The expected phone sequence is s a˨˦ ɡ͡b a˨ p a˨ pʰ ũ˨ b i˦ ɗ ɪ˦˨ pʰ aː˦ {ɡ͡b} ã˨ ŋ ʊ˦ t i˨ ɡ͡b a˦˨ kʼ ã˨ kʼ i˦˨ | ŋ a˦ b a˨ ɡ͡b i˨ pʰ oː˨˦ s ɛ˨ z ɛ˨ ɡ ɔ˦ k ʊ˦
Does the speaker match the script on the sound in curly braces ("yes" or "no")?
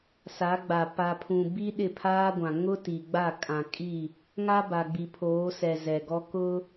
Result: no